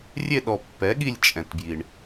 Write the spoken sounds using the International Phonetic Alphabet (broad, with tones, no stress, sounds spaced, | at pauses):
rʲ e˦˨ ɗ ɔ˨ pː ɛ˩˥ ɠ i˦˨ lʲ t͡ʃʼ ɛ̃˨ t b j i˨ ɳ